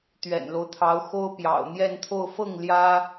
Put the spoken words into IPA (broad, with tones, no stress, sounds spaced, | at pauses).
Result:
t̪ ɥ ɛ̰˨˩ n l o˦ ʊ̯ t̪ʰ ɑ˧˥ ʊ̯ x o˥ ʊ̯ p j ɑ̰˨˩ ʊ̯ n̪ j ɛ˥˧ n t̪ʰ o˥˧ ʊ̯ f ɤ˥˩ ŋ l j ä˥